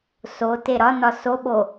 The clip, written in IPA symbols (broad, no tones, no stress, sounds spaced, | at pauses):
s o t e ɾ ɒ n ɒ s o ɓ o